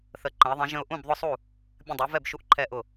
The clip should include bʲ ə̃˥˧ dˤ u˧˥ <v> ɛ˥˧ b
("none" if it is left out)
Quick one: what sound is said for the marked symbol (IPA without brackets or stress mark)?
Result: v